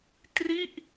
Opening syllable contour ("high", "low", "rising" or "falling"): falling